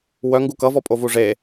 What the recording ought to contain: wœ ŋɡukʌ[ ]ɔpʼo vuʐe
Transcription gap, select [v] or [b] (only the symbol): v